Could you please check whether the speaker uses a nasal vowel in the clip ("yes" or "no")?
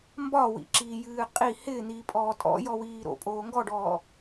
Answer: no